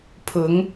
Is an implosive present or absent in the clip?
absent